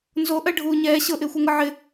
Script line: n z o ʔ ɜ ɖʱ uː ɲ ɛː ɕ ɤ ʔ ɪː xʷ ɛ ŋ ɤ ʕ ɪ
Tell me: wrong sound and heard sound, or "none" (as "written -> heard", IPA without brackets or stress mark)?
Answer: none